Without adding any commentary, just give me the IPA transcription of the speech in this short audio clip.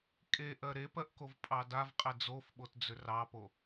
kʼeʔɜ ɾepɜʔkovpʼɑ davqʼɛ d͡zofɓotd͡zʏ rɑpo

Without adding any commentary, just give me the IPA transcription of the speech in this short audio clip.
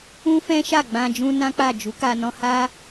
ũ˦fɛ̃˦ʃa˦˨ ɡ͡bã˧ d͡ʒũ˦nã˦k͡pa˦˨ d͡ʒu˨˦ka˧ nɔ̃˧ha˦

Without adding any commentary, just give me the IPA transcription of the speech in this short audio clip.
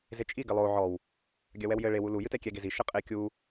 zet͡ʃʼi ɡɘlˠo ʕɔw | ɡʲɐwɛwjɘ ɭe wulu jɨtɛkʲɛ ɡezi ʃɘqʼe kʲu

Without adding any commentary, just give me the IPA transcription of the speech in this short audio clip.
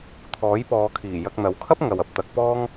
t̪ʰɔː˨˥jpɔː˨˧kʰiː˨˩ jɐ˧k̚n̪ɐ˨˥w kʰɐ˥p̚ŋɐ˨wɐ˧p̚ t̪ɐ˨˥k̚ pɔː˥ŋ

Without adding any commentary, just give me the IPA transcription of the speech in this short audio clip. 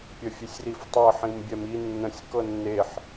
pʲəfʲesʲriftˤɤ ħĩmbʲɛmi nːə̃sʲ kɤnːeħ

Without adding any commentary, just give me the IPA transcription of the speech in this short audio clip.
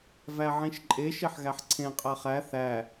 væʕĩʃǃʼe ʃeħɣæħǀʰẽ qʼæχæ θæ

